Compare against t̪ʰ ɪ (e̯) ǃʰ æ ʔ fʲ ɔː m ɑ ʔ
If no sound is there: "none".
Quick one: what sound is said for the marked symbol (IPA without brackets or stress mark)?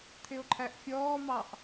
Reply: o̯